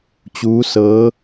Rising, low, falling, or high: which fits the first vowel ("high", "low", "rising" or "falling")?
rising